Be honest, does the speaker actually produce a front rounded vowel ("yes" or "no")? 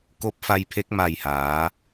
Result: no